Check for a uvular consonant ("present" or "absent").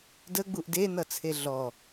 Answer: absent